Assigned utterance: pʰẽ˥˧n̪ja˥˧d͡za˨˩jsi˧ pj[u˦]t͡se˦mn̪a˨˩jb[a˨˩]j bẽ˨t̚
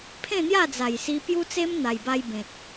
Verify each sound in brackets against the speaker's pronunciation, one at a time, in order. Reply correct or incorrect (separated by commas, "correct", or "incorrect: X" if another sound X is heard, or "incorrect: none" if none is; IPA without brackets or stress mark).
correct, incorrect: a˧